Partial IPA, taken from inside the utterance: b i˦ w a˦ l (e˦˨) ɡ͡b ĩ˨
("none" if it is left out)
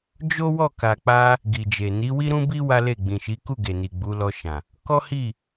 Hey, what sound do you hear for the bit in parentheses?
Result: e˦˨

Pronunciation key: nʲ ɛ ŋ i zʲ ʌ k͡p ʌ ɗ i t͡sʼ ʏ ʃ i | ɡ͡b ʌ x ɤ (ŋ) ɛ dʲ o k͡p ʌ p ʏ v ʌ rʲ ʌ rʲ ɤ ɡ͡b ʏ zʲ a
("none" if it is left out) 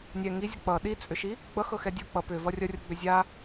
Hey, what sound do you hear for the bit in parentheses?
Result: x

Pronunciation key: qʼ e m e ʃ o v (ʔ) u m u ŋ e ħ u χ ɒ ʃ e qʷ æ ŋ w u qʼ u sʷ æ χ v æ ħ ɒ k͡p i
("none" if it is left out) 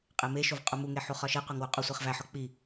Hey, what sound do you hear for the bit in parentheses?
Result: qʼ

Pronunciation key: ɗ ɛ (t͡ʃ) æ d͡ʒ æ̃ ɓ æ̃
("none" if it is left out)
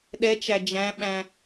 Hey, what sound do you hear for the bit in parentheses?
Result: t͡ʃ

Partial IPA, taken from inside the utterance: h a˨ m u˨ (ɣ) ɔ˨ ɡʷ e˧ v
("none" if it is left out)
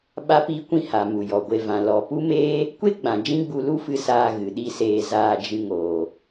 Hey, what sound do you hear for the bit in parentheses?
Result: j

